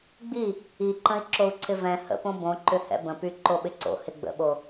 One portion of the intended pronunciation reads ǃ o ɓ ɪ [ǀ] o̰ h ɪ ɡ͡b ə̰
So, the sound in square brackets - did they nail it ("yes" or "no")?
yes